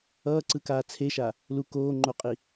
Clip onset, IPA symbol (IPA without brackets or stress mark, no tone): ʌː